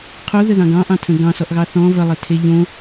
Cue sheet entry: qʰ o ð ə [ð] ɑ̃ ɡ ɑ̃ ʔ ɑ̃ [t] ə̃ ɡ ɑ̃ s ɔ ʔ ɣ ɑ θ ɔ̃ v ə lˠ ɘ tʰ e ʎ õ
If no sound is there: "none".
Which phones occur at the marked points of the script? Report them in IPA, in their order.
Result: ð, tʰ

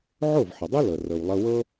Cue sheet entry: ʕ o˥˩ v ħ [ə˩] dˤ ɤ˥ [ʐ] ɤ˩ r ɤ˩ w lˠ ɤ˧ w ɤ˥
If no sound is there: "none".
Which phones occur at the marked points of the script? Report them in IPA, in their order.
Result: ə˩, l

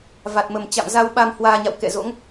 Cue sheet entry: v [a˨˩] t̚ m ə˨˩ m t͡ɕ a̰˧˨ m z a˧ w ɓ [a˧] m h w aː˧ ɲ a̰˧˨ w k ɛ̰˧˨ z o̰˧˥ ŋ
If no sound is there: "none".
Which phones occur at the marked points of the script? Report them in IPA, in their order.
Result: a˨˩, a˧

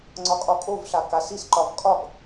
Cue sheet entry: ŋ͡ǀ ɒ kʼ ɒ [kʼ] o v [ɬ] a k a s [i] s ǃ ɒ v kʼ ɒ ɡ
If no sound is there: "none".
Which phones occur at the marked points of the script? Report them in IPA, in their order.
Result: kʼ, ɬ, i

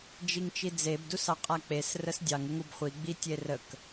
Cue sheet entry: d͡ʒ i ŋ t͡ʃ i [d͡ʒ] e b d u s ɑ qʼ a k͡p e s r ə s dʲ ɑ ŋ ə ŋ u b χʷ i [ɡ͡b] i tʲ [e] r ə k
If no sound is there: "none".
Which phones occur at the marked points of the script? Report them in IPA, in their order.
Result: d͡z, ɡ͡b, e

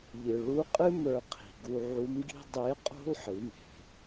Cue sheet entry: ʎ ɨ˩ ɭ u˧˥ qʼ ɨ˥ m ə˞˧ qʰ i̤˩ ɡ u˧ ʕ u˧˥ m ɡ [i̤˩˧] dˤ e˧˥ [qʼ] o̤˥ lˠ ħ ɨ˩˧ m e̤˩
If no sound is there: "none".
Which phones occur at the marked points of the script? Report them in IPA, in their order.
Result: i̤˥, qʼ

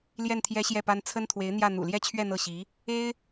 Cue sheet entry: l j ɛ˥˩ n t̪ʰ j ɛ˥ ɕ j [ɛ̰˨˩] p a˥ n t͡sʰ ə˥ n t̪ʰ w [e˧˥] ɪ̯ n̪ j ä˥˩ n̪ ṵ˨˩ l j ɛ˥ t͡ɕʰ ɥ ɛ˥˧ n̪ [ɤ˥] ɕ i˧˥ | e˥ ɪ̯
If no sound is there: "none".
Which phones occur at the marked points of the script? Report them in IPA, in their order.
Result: ɛ˥˩, e˧˥, ɤ˥˩

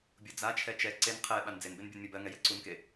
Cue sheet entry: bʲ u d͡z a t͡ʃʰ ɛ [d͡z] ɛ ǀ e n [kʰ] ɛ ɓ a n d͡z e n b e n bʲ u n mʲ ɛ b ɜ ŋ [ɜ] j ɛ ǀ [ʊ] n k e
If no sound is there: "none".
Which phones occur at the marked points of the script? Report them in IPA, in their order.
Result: t͡ʃ, qʰ, ɛ, u

